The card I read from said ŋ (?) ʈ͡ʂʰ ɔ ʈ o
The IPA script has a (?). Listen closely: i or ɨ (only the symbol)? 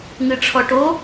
ɨ